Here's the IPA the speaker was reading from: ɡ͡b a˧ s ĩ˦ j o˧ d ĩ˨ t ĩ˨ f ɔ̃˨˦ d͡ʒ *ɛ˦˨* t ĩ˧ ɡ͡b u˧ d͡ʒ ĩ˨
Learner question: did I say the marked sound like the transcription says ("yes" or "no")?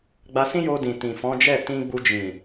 yes